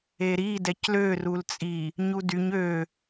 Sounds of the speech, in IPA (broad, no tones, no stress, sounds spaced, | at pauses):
e ɾ i d ɛ c l ø r u l t͡sʼ i | ɲ u d y ɲ ø